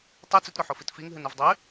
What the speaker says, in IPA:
tˤ ɨ t͡s ʉ t ɾ o ħ o f i t f i ŋ ɦ ɨ n ʉ v dˤ ʉ

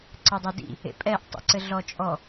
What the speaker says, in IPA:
ǀ ə dˤ e d ḭ | ḛ pʼ ɛ ʔ tˤ ḭ ǀ ɘ ɮ ɔ t͡ʃʼ ɔ

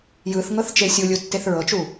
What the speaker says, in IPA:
j ɯ θ ŋ ɤ θ t͡ʃ e sʲ u lʲ u tː e θ ɹ ɤ t͡ʃ u

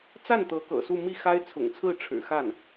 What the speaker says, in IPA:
t͡s a˥˩ n t̪ ɤ˧˥ k ɤ̰˨˩ s u˥˧ m i˥˩ x a˥ ɪ̯ t͡sʰ ʊ̰˨˩ ŋ t͡sʰ ɹ̩˥˩ ʈ͡ʂʰ ɻ̩˨˩ x a˥˩ n

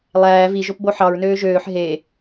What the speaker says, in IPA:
lˠ æː v i ʒ o p b o ħ ɑ ɹ n øː ʒ øː ħ ɦ e

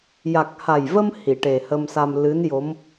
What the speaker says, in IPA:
j a˨˩ k̚ h a˨˩ j v ə˧ m h i˨˩˨ ʈ e˨˩ h ə˧ m s a˧ m l ɨ˧˥ n j o˧˥ m

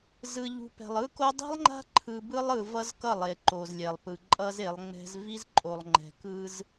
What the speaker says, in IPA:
z ɯ˨ ʎ ṳ˨ p ɛ̤˨ lˠ ɯ˦ k o˦ dˤ i̤˦ lˠ ŋ͡ǃ a̤˦ ǃʰ ɯ˨ b ɯ˦ lˠ ɯ˨ v ʌ˦ z k ʌ˦˨ lˠ e˨ ǃ o˨ z lʲ ɛ˨ lˠ p ɯ˨ ǃʼ ʌ˦ z e˨˦ lˠ ŋ͡m ɛ̤˦ z v i˦ z ǃʼ o˨ lˠ ŋ͡ǃ ɛ̤˨ k ɯ˦ z

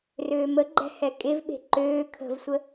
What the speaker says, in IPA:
r øː m ə ɡ͡ǃ ɛ̤ h ɛ kʼ e v ɓ e̤ ǃ øː kʰ ə̤ v sʷ ə

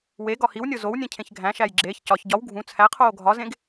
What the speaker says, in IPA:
w e ɡ ɒ h i w nʲ o z o w nʲ ẽ cʰ ẽ ç ɡʱ æ̃ ʃ æ j ɡ͡ǁ eː ç c ɒ ç ɟ ɒ w ɡʱ ũ t͡sʰ æ qʰ oː ɡʱ ɒ z ẽ ɡ

